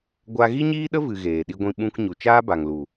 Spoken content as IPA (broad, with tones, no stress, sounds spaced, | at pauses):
ɡʷ a˦ ɣ i˦ ɲ iː˦ ɗ ə˦ v ɨ˨ ɣ eː˨ ɗ i˧ ɡʷ ĩ˧ ɓ ũ˧ k ɲ u˨ t͡ʃ aː˦ b a˨ ŋ l u˨